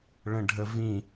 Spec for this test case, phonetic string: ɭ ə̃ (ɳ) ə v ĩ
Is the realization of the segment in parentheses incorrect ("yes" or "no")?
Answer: yes